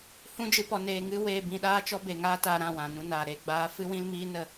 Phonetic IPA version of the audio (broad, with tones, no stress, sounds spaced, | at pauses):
h ũ˦ d͡ʒ ɨ˧ p ɔ˧ n eː˨ ŋ ɨ˧ w eː˧ b ĩ˧ ɗ aː˦ t͡ʃ ɔ˦ b e˨ ŋ aː˦ t aː˧ ɾ ã˦˨ w ã˨ n ũ˧ n aː˨ ɾ e˧ ɡ͡b aː˨˦ f ɨ˦ w ĩ˦ l m iː˦ n ə˦˨